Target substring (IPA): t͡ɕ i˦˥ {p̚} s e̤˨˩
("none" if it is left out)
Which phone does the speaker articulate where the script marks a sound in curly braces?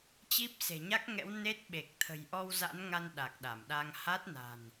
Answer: p̚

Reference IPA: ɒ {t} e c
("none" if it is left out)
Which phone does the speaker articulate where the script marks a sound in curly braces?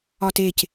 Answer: t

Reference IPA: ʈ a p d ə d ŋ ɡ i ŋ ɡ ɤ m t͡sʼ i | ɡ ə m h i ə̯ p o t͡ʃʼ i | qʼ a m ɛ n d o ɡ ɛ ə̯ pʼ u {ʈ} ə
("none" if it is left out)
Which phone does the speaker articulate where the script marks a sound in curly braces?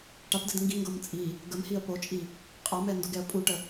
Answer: ʈ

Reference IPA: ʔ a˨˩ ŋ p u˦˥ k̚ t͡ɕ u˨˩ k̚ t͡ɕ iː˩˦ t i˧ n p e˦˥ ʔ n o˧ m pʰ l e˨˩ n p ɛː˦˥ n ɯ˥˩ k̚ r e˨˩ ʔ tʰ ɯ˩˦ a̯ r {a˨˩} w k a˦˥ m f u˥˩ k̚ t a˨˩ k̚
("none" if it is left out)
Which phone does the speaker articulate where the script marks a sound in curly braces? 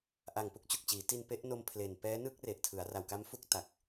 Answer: a˨˩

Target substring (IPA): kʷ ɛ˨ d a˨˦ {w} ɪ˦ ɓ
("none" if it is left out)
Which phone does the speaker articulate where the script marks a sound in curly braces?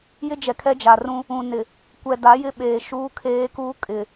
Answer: j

